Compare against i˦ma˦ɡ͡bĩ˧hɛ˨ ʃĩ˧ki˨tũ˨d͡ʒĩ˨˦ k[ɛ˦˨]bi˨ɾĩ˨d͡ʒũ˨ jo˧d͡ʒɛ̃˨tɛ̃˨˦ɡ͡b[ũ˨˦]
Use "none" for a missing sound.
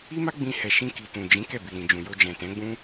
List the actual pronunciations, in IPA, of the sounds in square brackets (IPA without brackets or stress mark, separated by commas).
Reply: ɛ˦˨, ũ˦